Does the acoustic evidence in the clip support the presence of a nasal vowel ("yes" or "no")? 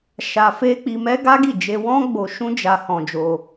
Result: yes